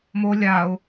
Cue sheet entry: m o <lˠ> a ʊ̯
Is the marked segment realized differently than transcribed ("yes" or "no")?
yes